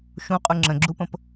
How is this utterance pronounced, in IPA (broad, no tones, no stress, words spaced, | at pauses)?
ʃũqʼu ŋ͡ǁə̃ɡ͡ǁupə̃p